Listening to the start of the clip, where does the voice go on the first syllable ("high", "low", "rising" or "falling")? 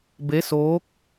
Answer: rising